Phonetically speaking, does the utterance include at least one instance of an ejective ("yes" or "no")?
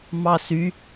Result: no